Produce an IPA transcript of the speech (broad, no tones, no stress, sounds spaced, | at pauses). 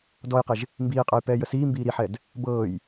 d ɔ j q e ʒ | m b iː qʼ ɤ j p ɛː j ə s iː m b iː ɾ i ħ ɛ d | b ɤː j